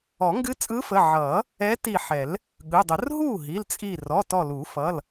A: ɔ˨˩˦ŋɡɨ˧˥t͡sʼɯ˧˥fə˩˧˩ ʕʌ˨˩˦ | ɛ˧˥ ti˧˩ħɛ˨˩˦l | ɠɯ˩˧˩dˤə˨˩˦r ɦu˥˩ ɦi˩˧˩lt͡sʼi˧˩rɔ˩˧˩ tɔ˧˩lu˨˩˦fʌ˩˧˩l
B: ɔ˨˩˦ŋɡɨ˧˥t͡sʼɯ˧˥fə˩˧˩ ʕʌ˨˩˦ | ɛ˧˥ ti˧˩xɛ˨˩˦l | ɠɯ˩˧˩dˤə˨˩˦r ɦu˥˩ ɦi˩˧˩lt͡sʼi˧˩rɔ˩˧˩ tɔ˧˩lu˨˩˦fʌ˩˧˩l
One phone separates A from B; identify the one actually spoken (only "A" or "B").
A